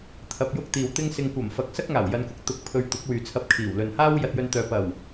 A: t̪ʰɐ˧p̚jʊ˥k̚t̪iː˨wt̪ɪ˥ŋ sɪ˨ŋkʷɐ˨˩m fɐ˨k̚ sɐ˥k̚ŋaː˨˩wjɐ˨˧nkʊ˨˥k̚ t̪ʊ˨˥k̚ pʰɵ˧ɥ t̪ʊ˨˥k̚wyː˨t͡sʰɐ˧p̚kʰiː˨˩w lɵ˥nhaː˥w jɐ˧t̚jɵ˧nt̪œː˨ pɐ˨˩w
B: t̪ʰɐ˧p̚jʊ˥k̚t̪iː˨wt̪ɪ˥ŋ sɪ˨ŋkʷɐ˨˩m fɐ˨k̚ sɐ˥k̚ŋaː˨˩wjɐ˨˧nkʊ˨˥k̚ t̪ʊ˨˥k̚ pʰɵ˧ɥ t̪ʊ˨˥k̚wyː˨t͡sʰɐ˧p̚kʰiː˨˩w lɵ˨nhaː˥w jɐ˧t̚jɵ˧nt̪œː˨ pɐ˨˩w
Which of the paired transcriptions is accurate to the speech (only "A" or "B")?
B